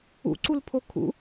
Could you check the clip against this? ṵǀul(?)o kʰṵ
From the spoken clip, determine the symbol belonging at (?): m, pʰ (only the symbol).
pʰ